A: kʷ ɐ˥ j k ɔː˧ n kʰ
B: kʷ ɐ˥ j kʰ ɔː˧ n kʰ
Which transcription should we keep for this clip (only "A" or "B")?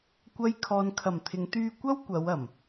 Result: B